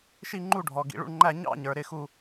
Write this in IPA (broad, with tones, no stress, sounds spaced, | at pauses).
ʃ i˥˧ ŋ͡ǃ u˥˧ ɖʱ ɔ˨ ɡ ḭ˨ ɭ ṵ˥˧ ɳ ŋ͡ǃ æ˥˧ ɲ ɑ̰˥˧ ɲ ə˞˨ ɾ ɪ˥˧ x u˥˧